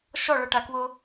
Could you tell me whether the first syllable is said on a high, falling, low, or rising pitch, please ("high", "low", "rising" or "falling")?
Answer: falling